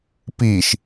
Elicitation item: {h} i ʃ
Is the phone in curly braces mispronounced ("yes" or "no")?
yes